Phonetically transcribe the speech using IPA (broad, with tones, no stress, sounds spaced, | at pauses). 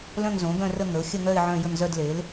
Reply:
l œ̃˥˧ ŋ z õ˩˥ ɡ œ̃˥˧ r ə˥˧ ŋ ə˩˥ ʊ̯ xʲ ə˥˧ ŋ œ˥˧ ɪ̯ ʕ œ̃˥˧ j ə˥˧ ŋ z œ˥˧ d l e˩˥ l